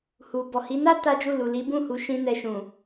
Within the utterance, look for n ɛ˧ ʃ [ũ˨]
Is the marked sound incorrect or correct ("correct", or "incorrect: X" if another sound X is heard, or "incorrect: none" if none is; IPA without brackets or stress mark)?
correct